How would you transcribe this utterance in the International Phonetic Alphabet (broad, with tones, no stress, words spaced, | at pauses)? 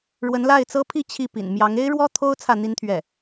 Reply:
ɻwə˧˥nla˥˩ɪ̯t͡sɤ˥pʰi˥˧ t͡ɕʰi˥˩ pḭ˨˩nmjɑ˧˥ŋ e˥ɪ̯ɻwɔ˥ t̪ʰo˥ʊ̯ t͡sʰä˥˩n̪i˥nt̪ʰɥɛ˥˩